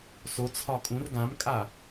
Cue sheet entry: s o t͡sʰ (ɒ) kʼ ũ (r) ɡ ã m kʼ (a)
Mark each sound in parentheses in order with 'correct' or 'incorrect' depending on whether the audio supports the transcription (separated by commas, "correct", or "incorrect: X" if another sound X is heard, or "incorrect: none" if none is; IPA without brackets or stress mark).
correct, correct, correct